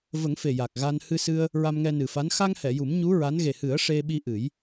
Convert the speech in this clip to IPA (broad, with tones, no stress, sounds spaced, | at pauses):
v ə˨˩˦ ŋ f e˨˩ j a˨˩ k̚ ɣ a˧ n h ɨ˧ s ɨ˧ ə̯ | ɹ a˧ m ŋ ɛ˧ n ɨ˨˩ f a˧˥ n x a˧ ŋ h ɛ˨˩˨ j u˨˩˦ m ɲ u˧˥ ɹ a˧˥ n ɣ e˨˩ h ɨ˨˩˦ ə̯ ʂ e˧ ɓ i˧ ʔ ɨ˨˩˦ j